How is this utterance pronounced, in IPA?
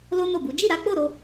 lo˦ no˦˨bu˨˦ d͡ʒi˦˨ɾa˨˦k͡po˦˨ ɾo˧

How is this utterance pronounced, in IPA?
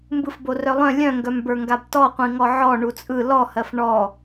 mbɯfborœlˠœ̃ lʲœ̃ŋɡœmbə˞ŋɡab tɔqʷĩŋɔ ʕɔ ɳut͡sʼɯ lɔhɜf ɳɔ

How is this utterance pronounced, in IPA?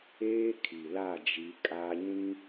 eː˦kʰi˨la˦˨d͡ʒi˨˦ kʼa˦ɲĩ˦

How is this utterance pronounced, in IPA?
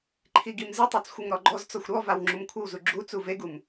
ǃʰiɡimzɨtˤat͡s xʷɨŋɾɔɡ͡ǃɔzt͡sɔxʷ ɾɔvaw ŋ͡ǁumkʷʰɨwzu ɡ͡ǁut͡su veɡum

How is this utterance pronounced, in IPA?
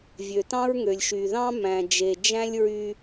vʲø˨tɑ̃˦ɹŋø˨lʲʃy˨ ðɑ̃˦mæ̃˨d͡ʒe˨d͡ʒæ̃˦lʲ ɹy˦

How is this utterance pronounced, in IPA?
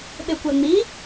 ɓekʷaŋ͡mi

